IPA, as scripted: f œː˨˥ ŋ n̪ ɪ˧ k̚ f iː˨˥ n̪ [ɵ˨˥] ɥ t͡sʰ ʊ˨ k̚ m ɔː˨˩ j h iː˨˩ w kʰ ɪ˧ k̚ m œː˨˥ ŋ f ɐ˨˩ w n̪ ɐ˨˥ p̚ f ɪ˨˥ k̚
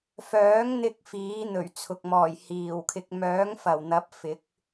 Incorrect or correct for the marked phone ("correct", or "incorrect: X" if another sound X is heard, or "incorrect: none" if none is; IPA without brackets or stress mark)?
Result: incorrect: ɵ˨˩